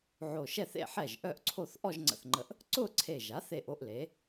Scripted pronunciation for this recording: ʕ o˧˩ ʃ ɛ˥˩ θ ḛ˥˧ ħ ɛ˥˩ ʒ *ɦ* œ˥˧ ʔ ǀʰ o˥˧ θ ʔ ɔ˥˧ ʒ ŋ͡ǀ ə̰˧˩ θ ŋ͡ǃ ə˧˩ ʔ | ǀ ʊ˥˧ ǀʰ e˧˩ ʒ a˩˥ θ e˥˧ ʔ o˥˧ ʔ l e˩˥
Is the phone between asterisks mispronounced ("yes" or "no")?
yes